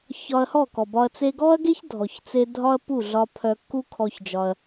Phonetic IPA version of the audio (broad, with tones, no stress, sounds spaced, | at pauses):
ç ɒ˧ ɐ̯ h ɔ˦˨ k ɔ˨ b ɒ˧ ɐ̯ t͡s e˧ ɡ ɔ˦ ɐ̯ ɡ e˦ ç dʱ ɔ˨ ç t͡s e˧ dʱ ɒ˦ ɐ̯ p u˦˨ ɮ ɒ˧ pʰ œ˧ kː u˦ kʰ ɔ˧ ç d͡ʒ ɒ˧ ɐ̯